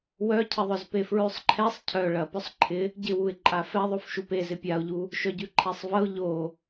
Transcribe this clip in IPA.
w œ cʰ ɪ ðˤ œ z p e f ɹ ʉ sˤ ǃʰ ɛ sˤ cʰ œ ɭ ɐ p œ sˤ ǃʰ ɪ | ɟ ɪ w u ɪ̯ ǃʼ a f ɛ ðˤ o f ʃ u p e z ɪ pʲ a ʊ̯ ʎ u | ʃ œ ɟ ʉ ǃʰ ɛ sˤ v ɐ ʊ̯ ʎ o

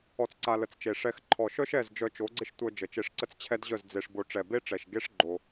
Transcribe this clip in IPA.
ɔ˧ t͡s ǀ a˧ l ə˨ t͡s t͡ʃ e˨ ʂ ɛ˧ x ǃʰ ɔ˨ ʃ œ˦ ʃ ɛ˦˨ z d͡ʒ œ˧ t͡ʃ o˨˦ ɡ͡ǀ ɪ˦ ʃ tʷ œ˧ d͡ʒ ə˨ t͡ʃ e˧ ʂ ǀ ə˦ t͡s t͡ɕʰ ɛ˦ d ʑ œ˦˨ z d͡z e˧ ʂ b o˧ ʈ͡ʂ ɛ˨ b e˦ ʈ͡ʂ ɛ˨ ʃ ɡ e˦ ʂ ɡ͡ǃ o˧

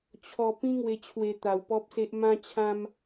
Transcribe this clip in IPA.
t͡ɕʰ ɔ˧ p ĩ˦ ŋ w e˧ t͡ɕʰ w e˧ t̪ a˧ w p ɔ˦ p̚ s e˦ ʔ m ã˦ t͡ɕʰ ã˦ m

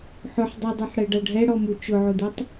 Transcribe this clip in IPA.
ħ ʊ ħ dˤ ʉ dˤ ɛ ħ ɽ ɛ ɖ a ɖʱ ɛ ɽ ɔ m u t͡ʃ ʊ ʕ ʊ d̪ u tˤ

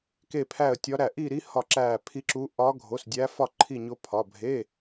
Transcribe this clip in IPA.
k e˥˧ pʰ æ˥˧ ə̯ tʲ ɒ˦˥ ɾ æ˥˧ ʔ i˥˧ ɾ i˦˥ h ɒ˥˧ ǁ æ˥˧ pʰ i˦˥ ǁ u˦˥ ʔ ɒ˦˥ ɡʱ o˧˥˧ s dʲ æ˦˥ f ɒ˥˧ ǃʰ i˥˧ ɲ o˦˥ pʰ ɒ˧˥˧ bʱ e˧˥˧

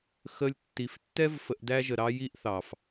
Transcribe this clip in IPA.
x ə˧ lʲ tː i˨ f tː ɛ˦ v f ə˧ ʔ d æ˦ ʒ ə˨ ɾ ɑ˦ j i˦ ʔ θ ɑ˨ f

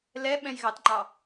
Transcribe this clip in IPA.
l ɛ ɓ ɛ̃ j ɣ ɑ t ŋ͡ǃ ɑ

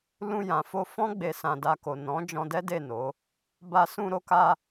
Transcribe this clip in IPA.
l ũ˧ j ã˨ f o˧ f ɔ̃˦ ɡ͡b e˧ s ã˧ d a˧ k o˨ n ɔ̃˨˦ d͡ʒ ɔ̃˧ d ɛ˦ d e˦˨ n o˨˦ | b a˧ s ũ˧ ɾ o˧ k a˧

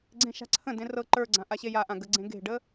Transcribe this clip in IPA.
ɡ͡ǀ ẽ ʃ a̤ ǀʰ ə̃ d ẽ r ɤ ǃ ə˞ ɡ͡ǀ ã ʔ a ɕ e j a ʔ ã ɡ ə ɡ͡ǀ ẽ ɡ e̤ ɖ ə

